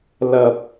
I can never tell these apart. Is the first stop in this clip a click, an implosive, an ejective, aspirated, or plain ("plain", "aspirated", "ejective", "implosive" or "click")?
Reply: plain